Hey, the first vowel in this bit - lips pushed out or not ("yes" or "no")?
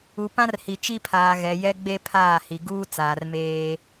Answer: yes